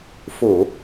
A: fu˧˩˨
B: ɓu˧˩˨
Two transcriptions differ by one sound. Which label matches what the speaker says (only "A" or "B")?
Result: A